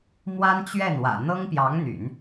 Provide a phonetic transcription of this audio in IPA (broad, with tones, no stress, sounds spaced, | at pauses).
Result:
m w a˥ n t͡ɕ ɥ ɛ˥˩ n w ä̰˨˩ n̪ ɤ˥ ŋ p j ɑ˧˥ ŋ n̪ y̰˨˩˦ n